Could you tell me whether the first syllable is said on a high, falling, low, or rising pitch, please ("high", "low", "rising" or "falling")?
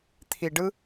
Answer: low